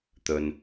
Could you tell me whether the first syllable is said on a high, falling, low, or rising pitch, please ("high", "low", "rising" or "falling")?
low